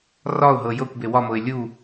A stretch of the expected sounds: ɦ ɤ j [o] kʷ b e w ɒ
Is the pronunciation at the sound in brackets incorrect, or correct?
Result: incorrect